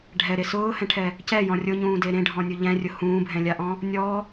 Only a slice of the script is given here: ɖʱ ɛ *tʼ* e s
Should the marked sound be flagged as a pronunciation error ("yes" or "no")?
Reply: yes